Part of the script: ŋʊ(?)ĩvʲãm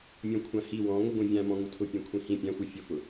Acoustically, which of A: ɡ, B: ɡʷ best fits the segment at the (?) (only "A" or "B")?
B